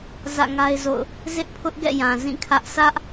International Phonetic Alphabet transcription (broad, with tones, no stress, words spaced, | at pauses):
zä̰˦˨ŋa˦ɪ̯zo̰˦˨ʊ̯ | zɪ˦ʔpʰʊ˦ʔɡɛ̰˦˨jã˨ zĩ˦˨kʰä˦ʔ sʰä˦ʔ